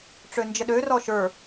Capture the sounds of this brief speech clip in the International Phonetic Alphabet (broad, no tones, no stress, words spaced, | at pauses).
ʈ͡ʂønd͡ʒəɗørɔ ʃə˞